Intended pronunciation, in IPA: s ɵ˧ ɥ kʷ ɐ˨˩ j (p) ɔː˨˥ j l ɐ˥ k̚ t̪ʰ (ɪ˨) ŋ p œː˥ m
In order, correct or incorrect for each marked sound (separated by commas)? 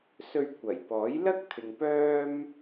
correct, correct